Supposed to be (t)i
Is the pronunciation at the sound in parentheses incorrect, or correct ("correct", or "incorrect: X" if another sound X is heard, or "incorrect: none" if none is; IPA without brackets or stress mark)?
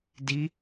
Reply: incorrect: d